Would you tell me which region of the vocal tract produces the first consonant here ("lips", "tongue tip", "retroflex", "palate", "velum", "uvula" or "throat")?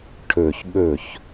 retroflex